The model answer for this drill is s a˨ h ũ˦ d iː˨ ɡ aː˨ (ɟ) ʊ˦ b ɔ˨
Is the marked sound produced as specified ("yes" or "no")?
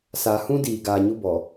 no